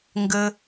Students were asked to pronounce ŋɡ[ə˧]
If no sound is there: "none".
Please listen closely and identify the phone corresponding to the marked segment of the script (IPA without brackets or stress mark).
ə˧